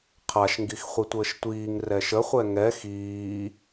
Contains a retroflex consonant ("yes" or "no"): no